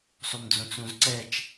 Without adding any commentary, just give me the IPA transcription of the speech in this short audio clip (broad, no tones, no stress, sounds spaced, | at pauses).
sˤ u m d͡z õ t͡s ɾ ũ z ǀ ɛ t͡ʃ